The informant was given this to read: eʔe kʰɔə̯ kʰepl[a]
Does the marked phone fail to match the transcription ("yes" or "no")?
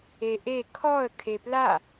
no